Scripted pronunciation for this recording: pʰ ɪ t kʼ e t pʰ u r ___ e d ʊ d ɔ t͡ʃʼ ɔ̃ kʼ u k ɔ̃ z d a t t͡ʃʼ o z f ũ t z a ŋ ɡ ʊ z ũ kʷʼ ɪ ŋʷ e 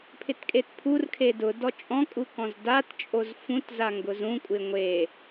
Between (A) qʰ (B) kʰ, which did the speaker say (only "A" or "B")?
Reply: B